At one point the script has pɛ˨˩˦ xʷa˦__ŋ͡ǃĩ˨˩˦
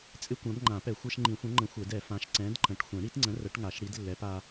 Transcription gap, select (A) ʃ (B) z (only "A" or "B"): A